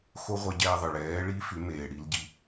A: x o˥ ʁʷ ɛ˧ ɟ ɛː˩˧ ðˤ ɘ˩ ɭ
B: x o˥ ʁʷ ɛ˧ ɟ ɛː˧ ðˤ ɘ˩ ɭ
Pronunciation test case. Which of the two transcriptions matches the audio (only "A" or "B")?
B